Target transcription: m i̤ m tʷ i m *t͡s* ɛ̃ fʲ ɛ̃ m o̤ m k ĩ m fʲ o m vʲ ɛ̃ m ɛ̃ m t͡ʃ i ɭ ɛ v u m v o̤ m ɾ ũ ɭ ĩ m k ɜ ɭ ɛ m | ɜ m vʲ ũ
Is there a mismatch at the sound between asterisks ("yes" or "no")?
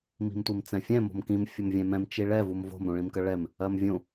no